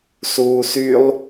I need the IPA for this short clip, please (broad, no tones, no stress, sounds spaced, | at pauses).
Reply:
s uː s y lˠ